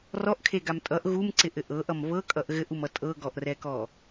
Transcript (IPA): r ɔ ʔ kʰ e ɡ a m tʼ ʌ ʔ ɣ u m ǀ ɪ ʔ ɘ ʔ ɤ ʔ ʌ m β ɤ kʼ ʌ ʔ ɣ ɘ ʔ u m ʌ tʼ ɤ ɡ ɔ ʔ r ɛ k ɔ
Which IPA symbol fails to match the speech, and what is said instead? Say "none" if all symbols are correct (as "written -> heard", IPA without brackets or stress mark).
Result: none